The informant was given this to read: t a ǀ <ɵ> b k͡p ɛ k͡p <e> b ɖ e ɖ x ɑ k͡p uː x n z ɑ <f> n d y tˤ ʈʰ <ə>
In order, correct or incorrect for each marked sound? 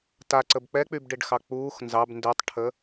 incorrect, incorrect, incorrect, correct

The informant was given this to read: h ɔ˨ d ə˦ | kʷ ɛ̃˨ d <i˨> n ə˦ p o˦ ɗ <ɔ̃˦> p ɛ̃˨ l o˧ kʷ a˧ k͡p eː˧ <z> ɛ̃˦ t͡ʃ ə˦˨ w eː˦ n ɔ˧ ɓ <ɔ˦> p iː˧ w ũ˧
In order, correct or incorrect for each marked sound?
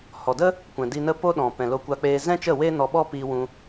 incorrect, incorrect, correct, correct

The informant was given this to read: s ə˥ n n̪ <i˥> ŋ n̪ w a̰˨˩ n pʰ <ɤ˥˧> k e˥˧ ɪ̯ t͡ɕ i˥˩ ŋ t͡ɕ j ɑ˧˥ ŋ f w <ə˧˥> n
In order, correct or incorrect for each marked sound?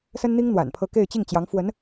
correct, correct, correct

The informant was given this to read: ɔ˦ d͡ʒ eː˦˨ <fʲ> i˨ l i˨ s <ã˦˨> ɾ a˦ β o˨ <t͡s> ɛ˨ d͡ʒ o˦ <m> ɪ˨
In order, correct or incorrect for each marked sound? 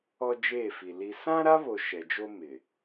incorrect, incorrect, incorrect, correct

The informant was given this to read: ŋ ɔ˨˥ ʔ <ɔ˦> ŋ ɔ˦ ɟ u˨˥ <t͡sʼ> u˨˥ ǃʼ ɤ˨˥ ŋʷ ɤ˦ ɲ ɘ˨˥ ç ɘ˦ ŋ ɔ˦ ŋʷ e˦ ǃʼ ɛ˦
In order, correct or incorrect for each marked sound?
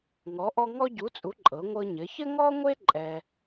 correct, correct

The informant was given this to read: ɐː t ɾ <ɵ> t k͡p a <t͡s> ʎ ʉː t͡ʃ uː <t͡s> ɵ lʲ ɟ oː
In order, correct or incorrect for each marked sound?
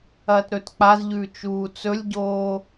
correct, incorrect, correct

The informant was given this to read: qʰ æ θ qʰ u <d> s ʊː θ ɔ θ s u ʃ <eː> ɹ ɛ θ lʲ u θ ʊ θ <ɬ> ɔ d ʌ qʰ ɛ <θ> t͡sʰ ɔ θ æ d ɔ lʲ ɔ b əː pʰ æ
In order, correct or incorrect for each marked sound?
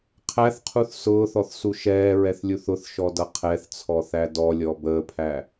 incorrect, incorrect, incorrect, correct

